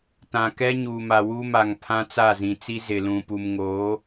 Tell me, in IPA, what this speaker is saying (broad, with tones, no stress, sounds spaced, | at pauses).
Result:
t ã˨ k ɛ˦ ɲ uː˨ m a˨ w u˦ m a˨ ŋ pʰ ã˦ t͡s a˦˨ z ĩ˨ t͡s i˦ z ɪ˨ l ũ˨ p u˨ m ŋ oː˨˦